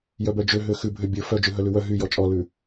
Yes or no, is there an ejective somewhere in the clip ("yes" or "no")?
yes